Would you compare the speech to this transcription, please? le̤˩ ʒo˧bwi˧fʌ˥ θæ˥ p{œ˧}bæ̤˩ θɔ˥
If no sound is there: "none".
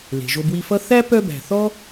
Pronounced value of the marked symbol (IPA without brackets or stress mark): œ˧